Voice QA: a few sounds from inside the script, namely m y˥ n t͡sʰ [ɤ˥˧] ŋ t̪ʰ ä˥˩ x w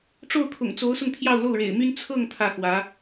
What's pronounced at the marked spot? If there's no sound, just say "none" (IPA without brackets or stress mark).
ɤ˥˧